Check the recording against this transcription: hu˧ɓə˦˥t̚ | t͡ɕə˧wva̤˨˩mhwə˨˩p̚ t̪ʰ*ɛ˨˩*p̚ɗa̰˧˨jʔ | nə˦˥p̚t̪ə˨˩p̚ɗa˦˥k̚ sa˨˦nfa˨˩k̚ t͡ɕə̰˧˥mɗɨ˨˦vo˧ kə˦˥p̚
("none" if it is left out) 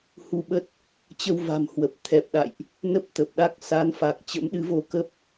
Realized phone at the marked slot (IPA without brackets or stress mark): ɛ˨˩